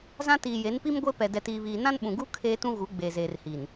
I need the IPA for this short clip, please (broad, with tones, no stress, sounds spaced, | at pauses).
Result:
z ã˦ t iː˨ j e˨˦ n p i˦ m ɡʷ e˦ p ɛ˨ d ɛ˨ t iː˨ β iː˨ n ã˦ n ɓ ũ˨ ɡ u˦ kʰ eː˦ t ũ˦ ɣ u˨˦ ɡ͡b eː˨ z eː˨ r h i˨ n